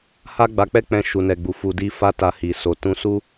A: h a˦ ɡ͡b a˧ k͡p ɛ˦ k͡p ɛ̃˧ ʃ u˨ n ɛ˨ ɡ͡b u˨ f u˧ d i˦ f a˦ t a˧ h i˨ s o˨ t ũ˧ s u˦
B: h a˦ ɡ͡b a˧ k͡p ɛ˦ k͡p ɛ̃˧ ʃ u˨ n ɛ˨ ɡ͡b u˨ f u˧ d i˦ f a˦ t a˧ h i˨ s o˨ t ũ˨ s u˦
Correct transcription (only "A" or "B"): A